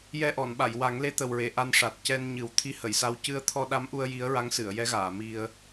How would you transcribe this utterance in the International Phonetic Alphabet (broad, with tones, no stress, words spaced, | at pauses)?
jɛ˧ʔɔ˨˩˨nɓa˨˩˨j wa˨˩˦ŋle˧˥t̪ə˨˩wɹe˨˩˨ ʔa˧nʂa˨˩t̚ cɛ˧nɲɨ˨˩˦w t̪ʰi˧˥hə˨˩˨jsa˧w cɨ˧ə̯t̪ʰɔ˧ɗa˧˥mʔu˧ə̯ ji˧˥ə̯ɹa˧˥ŋsɨ˨˩˨ə̯ jɛ˧˥ɣaː˨˩˨mi˧ə̯